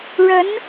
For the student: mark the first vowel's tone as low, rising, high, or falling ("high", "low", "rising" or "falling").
rising